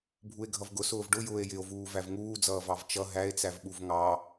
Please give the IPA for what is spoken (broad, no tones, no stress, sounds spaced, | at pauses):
bʱ u e̯ ɡʱ ʌ v ɡ ʊ s ʊː v ɖ ʊ j ʊː e̯ j ɪ o̯ v uː v æ v ŋ uː d͡z ʌː v ɑ v t͡ʃ ʌ ɦ æ e̯ t͡s æ v ɓ u v ŋ ɑ